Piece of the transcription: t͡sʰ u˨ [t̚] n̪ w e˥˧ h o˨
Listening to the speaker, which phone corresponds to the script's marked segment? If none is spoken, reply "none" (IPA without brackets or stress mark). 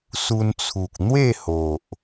k̚